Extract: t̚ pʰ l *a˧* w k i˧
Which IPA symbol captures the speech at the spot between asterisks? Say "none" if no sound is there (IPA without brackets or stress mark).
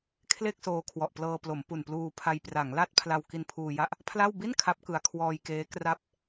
a˧